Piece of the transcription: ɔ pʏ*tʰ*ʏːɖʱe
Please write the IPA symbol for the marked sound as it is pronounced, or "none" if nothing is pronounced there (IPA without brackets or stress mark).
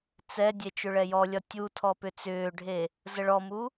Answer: t͡s